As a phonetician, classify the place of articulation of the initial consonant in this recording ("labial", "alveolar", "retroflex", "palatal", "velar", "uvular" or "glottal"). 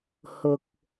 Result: glottal